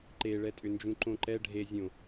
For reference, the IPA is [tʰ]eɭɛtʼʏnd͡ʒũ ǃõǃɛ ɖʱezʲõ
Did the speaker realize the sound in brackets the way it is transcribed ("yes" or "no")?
no